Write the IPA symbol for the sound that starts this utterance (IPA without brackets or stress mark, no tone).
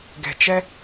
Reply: ɡ